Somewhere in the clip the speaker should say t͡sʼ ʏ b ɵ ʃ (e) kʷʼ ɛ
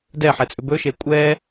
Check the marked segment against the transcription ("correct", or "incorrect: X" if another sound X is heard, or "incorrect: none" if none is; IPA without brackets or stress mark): correct